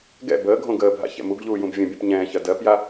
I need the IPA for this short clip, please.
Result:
ɡ ɛ̰ b əː ɡʱ õ ɡ əː bʱ a̰ ç ɛ̰ m u ɡ ʎ uː j ũ b vʲ ə̃ bʲ ũ p ɲ ɛ̃ː ç ɜ d ɜ p j a

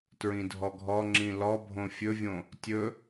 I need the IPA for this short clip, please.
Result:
t ɹ ĩ dʱ ɔ ɡʱ ɔ ŋ͡ǁ ĩ l ɔ bʱ õ fʲ ɵ vʲ õ | tʲ ɵ

